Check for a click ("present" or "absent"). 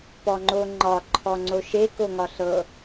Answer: present